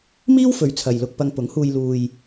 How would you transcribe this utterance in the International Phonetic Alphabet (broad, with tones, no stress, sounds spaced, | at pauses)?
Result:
m iː˥ w f ɵ˨ ɥ t͡sʰ ɐ˨ j l ʊ˧ k̚ p ɐ˧ ŋ p ʊ˨˥ ŋ h uː˧ j l uː˧ j